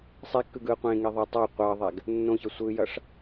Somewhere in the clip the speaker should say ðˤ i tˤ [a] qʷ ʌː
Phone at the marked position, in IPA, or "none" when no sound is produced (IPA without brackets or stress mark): a